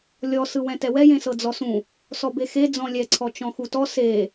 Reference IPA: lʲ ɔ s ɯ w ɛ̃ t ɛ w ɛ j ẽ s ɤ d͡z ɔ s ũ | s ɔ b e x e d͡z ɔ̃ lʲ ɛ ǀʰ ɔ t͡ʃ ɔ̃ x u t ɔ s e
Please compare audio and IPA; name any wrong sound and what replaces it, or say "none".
none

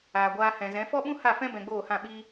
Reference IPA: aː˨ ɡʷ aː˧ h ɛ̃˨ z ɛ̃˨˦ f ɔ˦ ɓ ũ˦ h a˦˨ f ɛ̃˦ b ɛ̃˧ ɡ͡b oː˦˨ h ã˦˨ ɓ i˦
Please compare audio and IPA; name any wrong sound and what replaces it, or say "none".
none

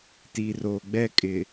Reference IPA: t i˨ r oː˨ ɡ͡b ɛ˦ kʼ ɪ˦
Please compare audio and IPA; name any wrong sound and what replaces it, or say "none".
ɪ˦ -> ɪ˨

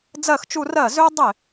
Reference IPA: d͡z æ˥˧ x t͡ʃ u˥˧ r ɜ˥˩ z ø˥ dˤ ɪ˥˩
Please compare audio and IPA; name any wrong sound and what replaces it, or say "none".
æ˥˧ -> ɜ˥˧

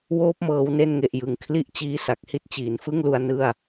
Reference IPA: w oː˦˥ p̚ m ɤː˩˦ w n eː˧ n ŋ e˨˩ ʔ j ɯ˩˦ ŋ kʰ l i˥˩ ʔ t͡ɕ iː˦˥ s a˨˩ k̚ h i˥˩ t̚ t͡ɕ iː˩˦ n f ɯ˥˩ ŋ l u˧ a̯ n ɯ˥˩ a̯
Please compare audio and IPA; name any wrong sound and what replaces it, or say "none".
eː˧ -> e˧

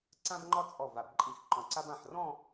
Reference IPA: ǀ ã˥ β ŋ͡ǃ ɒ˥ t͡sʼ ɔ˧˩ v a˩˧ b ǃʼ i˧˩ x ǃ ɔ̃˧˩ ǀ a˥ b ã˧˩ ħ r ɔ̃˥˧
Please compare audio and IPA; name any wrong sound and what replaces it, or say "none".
β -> b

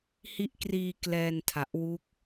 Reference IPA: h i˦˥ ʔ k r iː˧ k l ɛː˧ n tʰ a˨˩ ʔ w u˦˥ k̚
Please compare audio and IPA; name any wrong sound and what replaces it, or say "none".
none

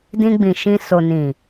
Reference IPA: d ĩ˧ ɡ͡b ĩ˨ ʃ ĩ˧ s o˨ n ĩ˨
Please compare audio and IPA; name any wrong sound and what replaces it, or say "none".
none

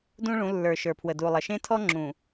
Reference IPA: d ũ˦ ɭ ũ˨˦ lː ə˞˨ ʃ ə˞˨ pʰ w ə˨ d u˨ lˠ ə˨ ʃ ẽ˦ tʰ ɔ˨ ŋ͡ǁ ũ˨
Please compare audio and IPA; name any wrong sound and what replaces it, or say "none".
ɔ˨ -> ɔ˦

